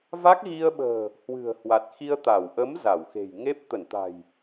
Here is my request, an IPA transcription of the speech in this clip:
v a˦˥ k̚ ɣ i˧ ə̯ ɓ ə̤ː˨˩ | h w ɨ̤˨˩ ə̯ h w a˨˩ t̚ x i˧ ə̯ t̪ a˧˩ w ʔ ə˨˦ m z a˧˩ w x e̤˨˩ j ŋ e˦˥ p̚ t̪ ə˧˩ n t̪ a̤˨˩ j

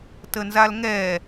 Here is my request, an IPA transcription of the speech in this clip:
t ə n z a l ŋ ɛ

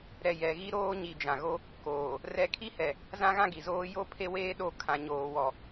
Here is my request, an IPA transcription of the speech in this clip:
ɾ ɛ˨ j ɛ˨ ɣ i˦ ɾ oː˦ ɲ i˨ d͡ʒ ã˨ ɣ o˦ | k oː˨ | r ɛ˦ kʰ i˦ h ɛ˨ | z ã˦ ɣ ã˦ ɡ i˨ z oː˦ j o˦ pʰ e˦ w eː˦ ɗ o˦˨ kʰ ã˦ ɲ oː˦ w ɔ˦

